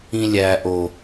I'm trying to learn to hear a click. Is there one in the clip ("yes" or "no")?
no